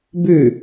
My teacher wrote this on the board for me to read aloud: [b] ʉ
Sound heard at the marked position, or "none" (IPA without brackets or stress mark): b